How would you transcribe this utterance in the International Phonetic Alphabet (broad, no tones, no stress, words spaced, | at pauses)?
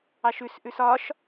ɑʃʉsʔʉs ɒʃ